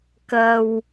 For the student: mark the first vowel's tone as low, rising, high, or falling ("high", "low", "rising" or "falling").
low